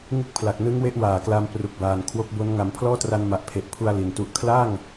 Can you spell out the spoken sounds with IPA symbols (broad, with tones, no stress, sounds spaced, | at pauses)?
ŋ ɯ˦˥ k̚ pʰ l a˨˩ k̚ n ɯ˦˥ ŋ w e˦˥ ʔ w aː˨˩ k l a˦˥ m p r u˨˩ k̚ b aː˨˩ n kʰ w o˦˥ k̚ b o˦˥ n ŋ a˩˦ m pʰ l ɔː˥˩ t r a˧ n m a˨˩ ʔ pʰ e˨˩ ʔ pʰ u˧ a̯ l i˨˩ n t u˦˥ ʔ kʰ l a˥˩ ŋ